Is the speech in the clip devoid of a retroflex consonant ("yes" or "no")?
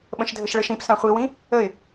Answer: no